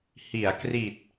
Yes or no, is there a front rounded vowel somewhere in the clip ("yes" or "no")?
no